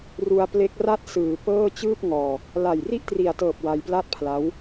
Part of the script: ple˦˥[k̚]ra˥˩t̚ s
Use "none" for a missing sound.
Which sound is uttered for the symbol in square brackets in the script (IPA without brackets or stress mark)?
k̚